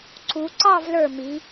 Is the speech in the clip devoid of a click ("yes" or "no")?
no